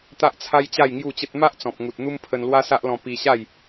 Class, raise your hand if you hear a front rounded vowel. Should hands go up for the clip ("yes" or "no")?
no